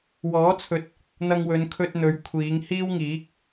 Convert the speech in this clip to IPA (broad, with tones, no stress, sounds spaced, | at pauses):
w ɔː˨˥ t͡sʰ ɵ˨˥ t̚ | n̪ ɐ˧ ŋ w ɵ˨˧ n kʰ ɵ˧ t̚ n̪ ɵ˨˧ ɥ kʷʰ iː˨˧ ŋ h iː˥ w ŋ iː˨˥ k̚